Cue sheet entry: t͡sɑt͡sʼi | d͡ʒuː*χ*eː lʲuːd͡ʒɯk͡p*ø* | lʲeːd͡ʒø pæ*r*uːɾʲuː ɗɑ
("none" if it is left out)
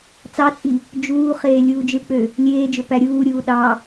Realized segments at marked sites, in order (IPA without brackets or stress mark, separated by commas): χ, ø, ɾʲ